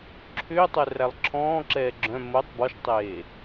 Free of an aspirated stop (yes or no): no